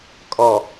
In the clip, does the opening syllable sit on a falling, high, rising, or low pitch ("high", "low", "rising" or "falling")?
low